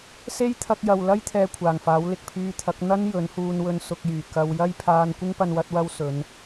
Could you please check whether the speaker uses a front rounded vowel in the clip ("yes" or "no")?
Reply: yes